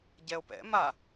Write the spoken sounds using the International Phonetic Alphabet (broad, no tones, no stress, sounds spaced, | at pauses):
ɟ ɛ o̯ p ɛ̰ m a